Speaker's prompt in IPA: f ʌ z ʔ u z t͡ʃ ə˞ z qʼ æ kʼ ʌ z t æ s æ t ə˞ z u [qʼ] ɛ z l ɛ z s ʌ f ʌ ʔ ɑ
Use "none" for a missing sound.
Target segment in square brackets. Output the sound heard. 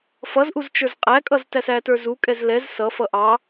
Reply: kʼ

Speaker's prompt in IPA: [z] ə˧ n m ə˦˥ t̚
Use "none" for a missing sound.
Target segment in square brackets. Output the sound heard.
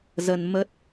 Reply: z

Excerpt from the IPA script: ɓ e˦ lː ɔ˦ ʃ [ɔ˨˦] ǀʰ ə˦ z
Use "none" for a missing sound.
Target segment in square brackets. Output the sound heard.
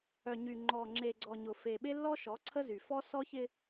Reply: ɔ˨˦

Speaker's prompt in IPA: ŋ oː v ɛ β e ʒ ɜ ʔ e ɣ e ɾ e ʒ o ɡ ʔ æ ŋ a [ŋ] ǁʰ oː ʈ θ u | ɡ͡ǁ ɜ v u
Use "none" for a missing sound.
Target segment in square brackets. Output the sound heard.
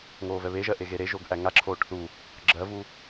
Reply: none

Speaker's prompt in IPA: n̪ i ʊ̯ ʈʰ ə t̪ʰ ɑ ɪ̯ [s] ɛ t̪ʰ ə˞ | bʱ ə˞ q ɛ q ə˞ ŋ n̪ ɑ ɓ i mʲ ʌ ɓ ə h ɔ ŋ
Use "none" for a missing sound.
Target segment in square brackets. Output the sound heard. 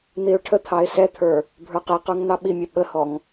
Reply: s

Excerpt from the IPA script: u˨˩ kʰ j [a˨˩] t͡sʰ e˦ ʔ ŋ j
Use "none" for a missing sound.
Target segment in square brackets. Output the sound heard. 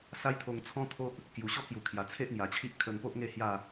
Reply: a˨˩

